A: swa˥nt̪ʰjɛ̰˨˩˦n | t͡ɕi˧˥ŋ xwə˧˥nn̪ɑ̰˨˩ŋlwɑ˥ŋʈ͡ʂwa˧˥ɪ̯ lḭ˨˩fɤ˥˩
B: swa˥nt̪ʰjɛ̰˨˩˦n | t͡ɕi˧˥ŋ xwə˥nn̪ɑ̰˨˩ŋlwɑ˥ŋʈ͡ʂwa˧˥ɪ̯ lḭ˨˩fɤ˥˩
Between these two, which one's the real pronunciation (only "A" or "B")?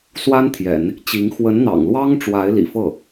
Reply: A